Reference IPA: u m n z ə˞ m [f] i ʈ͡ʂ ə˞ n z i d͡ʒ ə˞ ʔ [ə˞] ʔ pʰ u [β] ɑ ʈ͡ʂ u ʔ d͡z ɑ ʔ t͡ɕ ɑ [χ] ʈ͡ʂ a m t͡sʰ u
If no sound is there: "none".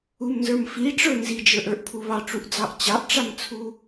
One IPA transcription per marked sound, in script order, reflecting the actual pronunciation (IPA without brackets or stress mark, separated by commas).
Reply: f, ə˞, β, ʔ